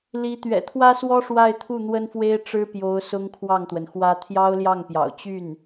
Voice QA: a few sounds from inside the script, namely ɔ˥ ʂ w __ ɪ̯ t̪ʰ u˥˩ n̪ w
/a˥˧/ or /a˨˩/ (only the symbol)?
a˥˧